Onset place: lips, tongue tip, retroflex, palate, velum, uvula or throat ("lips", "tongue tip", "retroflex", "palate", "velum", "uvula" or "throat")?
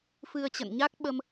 lips